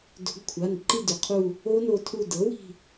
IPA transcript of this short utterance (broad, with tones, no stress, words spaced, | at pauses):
do̤˨˩˦ɡkʷʰa˩˧˩n ǃi˦˨dʏ˩˥qʰu˦˨ | o˦˥no˦˨tʰu˦˨ dɤ˩˥wi̤˦˨